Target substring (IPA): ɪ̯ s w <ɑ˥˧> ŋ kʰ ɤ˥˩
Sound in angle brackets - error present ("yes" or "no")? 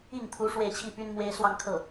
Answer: no